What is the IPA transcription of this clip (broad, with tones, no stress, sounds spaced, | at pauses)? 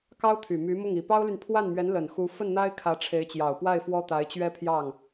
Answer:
k ɑ˥ ʊ̯ t̪ʰ y˨˩ m y˧˥ m ʊ˥˩ ŋ i˨˩ p ɑ˥ ʊ̯ l y˨ n pʰ w a˥˩ n m ɥ ɛ˧˥ n l ə˨˩ n x u˧˥ f ə˥˩ n n̪ a˥ ɪ̯ kʰ ä˧˥ ʈ͡ʂʰ e˧˥ ɪ̯ t͡ɕ j ɑ˨˩ ʊ̯ p w a˥˩ ɪ̯ f w ɔ˥ t̪ a˧˥ ɪ̯ t͡ɕ ɥ ɛ˥ pʰ j ɑ˥˩ ŋ